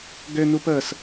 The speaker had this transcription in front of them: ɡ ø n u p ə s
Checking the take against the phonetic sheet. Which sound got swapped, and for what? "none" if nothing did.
none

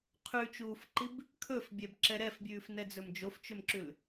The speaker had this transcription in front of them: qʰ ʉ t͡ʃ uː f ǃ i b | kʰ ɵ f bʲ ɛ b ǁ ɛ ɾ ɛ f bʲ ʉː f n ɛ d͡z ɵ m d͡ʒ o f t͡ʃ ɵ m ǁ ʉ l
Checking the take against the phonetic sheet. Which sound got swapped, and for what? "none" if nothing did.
none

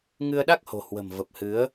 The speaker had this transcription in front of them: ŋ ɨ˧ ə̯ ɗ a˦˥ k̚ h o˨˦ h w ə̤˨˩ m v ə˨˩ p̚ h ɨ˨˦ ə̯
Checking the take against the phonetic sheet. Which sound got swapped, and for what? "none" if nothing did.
o˨˦ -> o̤˨˩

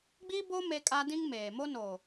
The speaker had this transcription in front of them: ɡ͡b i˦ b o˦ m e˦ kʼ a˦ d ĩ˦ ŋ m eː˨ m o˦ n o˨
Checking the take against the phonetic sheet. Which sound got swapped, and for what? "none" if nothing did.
none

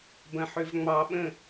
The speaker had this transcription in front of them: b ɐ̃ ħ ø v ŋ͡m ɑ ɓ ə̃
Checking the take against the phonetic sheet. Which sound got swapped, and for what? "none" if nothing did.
none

